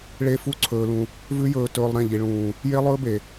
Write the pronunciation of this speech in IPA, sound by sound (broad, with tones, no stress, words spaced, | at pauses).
ɭe˦fu˦ǀʰɵː˧lũ˧ | vʉ˦jɵː˧tɵː˧lˠ ɾẽ˦˨ʎi˨ ɭũː˨ | je˦lˠɵː˦be˨